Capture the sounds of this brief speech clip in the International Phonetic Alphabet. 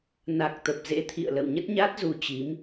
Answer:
na˨˩k̚t̪ə˨˩p̚zḛ˧˥t̪ʰḭ˧˨ə̯ lə̰˧˨wɲə˦˥t̚ɲa˦˥t̚ zu˧t͡ɕi˨˦m

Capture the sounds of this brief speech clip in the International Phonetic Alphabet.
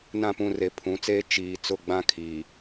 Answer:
nã˦˨pũ˦˨re˨ pʰũ˨˦t͡seː˦ t͡ʃiː˨ t͡sʊ˦˨ɡ͡bã˦ kʰiː˨

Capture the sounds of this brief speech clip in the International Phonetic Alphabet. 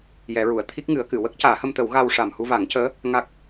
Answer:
jɛ˨˩˦ɹu˨˩˨ə̯ t̪ʰi˦˥k̚ŋɨ˨˩˦ə̯kɨ˨˩˨ wə˦˥k̚caː˨˩˦hə˧mt̪ə˨˩˦w ɣa˧w ʂa˨˩mhu˧va˨˩˦ŋcəː˧˥ | ŋa˦˥k̚

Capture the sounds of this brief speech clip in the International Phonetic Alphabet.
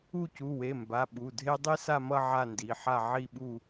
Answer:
u˦˨cu˩˧˩we˩˧˩mba˩˧˩ ɓu˩˧˩dʱe˦ dˤi˦sa˦˨mʌ˦˨ ʕa˦˨ndi˩˧˩ħa˦˨ ʕi˦˨ɓu˦˨

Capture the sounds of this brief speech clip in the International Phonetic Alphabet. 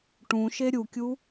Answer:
ʈũʃe ɾʲukʲu

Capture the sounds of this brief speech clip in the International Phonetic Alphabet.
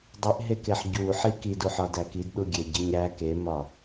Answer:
dˤiʔɦekeħ ɟuħi kiduħɒdæ kidɗuɡʲeɟiɲ ɾæ kemɒ

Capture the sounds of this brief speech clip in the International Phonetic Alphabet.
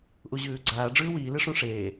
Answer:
ʔuʑʉːɡ͡ǀaː ɖ͡ʐʉːwiː lɨʂũʂeː

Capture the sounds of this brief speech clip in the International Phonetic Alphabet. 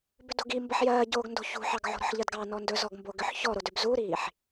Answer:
bʏdo̤ɡi mbəħjɜːɟoːɡ ndo̤çṳħɑɡʕo̤ ɾɔ̤ħʎɜdɡɑ nɔndɵ zɔɡmboɡʏħ çɔɾodʏb zuɾiːħ

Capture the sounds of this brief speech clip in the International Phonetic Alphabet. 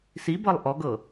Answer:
sibɤlˠ ʔɔɡɤ

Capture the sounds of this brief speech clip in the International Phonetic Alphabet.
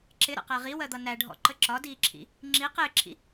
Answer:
ǁɪɾə̰qæ ʁiwɜd̪ʌ næɖʱɔ̰ǃə ǁɒdiːǁʰḭ | ŋ͡ǁi qɪːǁʰḭ

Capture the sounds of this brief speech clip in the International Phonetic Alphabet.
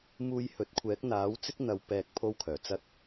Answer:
muː˧jhɵ˨˥t̚ kʷʰɛː˨˥k̚n̪aː˨˥wt͡sɪ˥k̚n̪ɐ˨˧w pɛː˧k̚ pʰo˥wkʰœː˨˩t͡sɐ˥t̚

